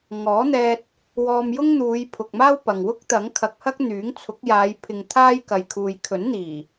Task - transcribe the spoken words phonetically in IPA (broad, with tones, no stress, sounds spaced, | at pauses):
ŋ ɔː˨˥ n̪ ɛː˧ t̚ | w ɔː˧ m j ʊ˥ ŋ n̪ uː˨˧ j pʰ ʊ˨ k̚ m aː˥ w p ɐ˨ ŋ w ʊ˥ k̚ t̪ ɐ˨˥ ŋ kʰ ɐ˨ k̚ h ɐ˥ k̚ n̪ yː˨˥ ŋ t͡sʰ ʊ˨˥ k̚ j aː˨˧ j pʰ ɪ˨ ŋ t̪ʰ aː˥ j k ɐ˨ j kʰ uː˨ j kʰ ɵ˨˥ n n̪ iː˨˩